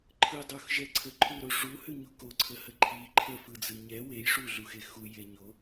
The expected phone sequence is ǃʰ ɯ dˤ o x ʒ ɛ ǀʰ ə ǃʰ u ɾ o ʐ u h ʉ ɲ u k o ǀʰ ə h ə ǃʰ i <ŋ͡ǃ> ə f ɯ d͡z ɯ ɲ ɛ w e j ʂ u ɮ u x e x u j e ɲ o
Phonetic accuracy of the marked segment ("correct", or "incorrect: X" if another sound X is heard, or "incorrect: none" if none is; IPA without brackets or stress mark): incorrect: ǃʰ